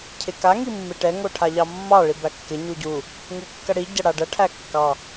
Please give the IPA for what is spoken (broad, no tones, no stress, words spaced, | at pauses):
cʰɪka ŋimːɪʈɛ ŋoʈʰaʎɑmːɑ ɭibækːɪ ɲuɟu | ŋukːɐɽi ɟɐɽaɖɐ ʈʰækːɑ